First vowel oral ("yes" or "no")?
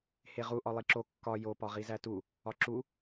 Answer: yes